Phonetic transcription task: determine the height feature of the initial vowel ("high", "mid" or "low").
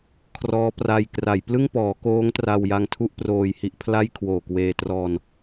mid